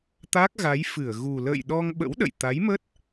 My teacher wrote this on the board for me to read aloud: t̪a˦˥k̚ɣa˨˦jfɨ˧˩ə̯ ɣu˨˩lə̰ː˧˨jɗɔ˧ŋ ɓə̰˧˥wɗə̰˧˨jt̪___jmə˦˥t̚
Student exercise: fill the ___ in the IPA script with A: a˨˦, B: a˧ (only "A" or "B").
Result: A